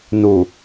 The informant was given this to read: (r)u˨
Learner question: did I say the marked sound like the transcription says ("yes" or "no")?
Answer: no